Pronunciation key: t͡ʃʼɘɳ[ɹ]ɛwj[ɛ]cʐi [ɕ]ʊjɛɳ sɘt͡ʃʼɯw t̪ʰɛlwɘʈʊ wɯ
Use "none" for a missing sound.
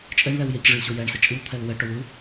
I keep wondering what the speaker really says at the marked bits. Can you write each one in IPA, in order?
l, ɛ, ɕ

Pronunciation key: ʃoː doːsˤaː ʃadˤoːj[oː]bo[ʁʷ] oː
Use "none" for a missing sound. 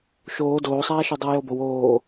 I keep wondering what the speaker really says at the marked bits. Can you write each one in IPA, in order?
o, w

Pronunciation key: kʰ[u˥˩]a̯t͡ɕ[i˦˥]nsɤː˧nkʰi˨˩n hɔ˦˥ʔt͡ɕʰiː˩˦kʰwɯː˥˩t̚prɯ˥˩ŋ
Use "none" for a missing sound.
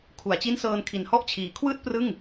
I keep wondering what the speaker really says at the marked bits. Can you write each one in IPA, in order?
u˩˦, i˦˥

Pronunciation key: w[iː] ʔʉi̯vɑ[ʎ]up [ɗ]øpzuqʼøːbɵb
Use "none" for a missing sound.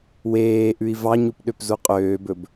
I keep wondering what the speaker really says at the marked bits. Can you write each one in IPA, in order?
eː, ɲ, ɗ

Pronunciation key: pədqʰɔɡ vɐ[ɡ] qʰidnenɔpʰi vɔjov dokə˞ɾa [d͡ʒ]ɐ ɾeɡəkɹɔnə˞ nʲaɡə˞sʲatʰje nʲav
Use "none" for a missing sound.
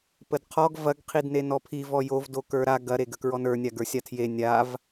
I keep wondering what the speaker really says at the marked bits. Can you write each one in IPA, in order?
ɡ, ɡ

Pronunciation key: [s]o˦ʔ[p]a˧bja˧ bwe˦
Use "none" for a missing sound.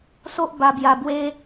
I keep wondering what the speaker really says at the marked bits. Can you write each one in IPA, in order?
s, b

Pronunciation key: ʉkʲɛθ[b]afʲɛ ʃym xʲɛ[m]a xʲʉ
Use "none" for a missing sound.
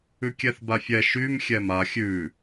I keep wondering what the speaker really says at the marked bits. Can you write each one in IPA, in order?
b, m

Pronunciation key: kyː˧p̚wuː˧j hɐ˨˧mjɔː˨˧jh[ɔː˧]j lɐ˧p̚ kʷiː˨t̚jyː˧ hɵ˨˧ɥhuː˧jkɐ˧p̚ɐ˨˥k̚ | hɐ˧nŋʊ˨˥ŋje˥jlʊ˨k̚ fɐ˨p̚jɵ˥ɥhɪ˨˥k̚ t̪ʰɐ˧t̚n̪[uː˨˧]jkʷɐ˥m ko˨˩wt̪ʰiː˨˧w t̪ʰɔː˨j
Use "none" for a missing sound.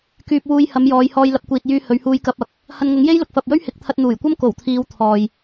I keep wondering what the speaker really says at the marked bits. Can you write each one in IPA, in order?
ɔː˧, uː˨˩

